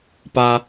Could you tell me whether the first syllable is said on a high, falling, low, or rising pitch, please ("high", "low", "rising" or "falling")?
high